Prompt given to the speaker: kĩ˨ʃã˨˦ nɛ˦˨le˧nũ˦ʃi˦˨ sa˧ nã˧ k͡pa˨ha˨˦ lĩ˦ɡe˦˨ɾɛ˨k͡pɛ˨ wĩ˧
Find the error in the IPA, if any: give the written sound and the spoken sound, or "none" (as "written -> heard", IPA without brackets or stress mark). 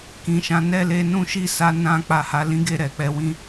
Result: none